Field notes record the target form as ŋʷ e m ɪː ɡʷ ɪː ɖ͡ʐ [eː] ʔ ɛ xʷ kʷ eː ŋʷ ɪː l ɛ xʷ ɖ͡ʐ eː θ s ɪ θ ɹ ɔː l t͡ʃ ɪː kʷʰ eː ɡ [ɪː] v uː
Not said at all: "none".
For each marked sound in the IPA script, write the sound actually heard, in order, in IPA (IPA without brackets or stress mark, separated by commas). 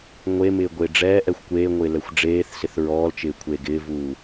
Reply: ɛː, ɪː